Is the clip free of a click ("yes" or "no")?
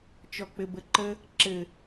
no